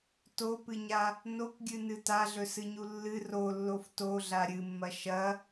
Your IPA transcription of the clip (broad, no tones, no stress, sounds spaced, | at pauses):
t o p ɨ ɲ a | n o k ɡʲ ɨ n ɨ t a ɮ ɵ s ɨ ɲ u lː ɨ r o lː o f t o ɮ a ɾʲ ɨ mː ɐ ʃ ɐ